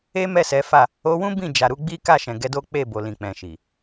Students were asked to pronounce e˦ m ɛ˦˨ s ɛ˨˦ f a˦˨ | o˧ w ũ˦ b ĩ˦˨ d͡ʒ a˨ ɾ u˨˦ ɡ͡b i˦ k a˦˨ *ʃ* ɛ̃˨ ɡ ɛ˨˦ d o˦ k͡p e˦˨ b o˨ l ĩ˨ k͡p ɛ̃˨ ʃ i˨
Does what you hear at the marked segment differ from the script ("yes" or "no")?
no